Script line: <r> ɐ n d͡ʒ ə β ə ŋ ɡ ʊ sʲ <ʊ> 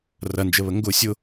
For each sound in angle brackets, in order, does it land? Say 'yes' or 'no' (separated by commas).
yes, yes